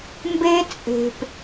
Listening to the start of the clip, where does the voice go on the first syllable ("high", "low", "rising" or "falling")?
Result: high